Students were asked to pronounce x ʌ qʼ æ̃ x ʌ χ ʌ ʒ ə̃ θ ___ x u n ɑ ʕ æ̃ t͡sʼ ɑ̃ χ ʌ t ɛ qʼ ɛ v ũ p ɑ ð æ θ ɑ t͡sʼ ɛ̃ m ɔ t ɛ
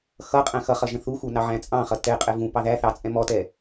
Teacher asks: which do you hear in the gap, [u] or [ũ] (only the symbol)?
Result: u